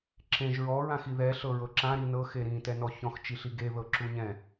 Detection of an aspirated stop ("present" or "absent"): absent